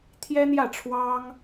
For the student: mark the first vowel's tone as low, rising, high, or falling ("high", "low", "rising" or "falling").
high